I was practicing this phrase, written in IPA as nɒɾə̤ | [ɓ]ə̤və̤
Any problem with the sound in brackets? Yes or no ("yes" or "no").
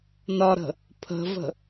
yes